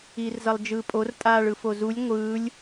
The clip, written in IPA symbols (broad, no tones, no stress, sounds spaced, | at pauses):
iː r z ʌ lˠ d͡ʒ ɯː pʼ o r tʼ aː ɭ ɯ f o z u lʲ ŋʷ ɯː lʲ